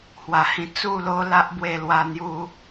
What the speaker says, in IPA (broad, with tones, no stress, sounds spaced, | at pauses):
h w a˨˩ h ĩ˧ t͡s u˥˧ l o˦ l a˦ ʔ b w e˥˧ l w a˥˧ n̪ j u˦